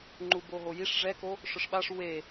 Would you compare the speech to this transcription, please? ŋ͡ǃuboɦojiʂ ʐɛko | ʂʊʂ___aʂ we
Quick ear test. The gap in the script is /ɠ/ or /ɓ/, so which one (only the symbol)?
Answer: ɓ